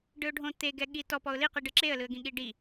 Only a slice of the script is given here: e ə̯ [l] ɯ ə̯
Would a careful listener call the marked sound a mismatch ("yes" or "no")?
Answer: no